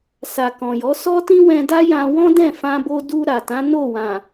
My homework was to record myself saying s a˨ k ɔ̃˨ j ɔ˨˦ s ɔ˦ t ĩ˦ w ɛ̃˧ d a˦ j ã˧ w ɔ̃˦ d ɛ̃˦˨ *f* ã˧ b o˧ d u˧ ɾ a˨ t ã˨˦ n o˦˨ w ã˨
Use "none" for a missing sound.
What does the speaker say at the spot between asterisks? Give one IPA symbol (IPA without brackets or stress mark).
f